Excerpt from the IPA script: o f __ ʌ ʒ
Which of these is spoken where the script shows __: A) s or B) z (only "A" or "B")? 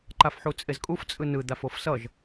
A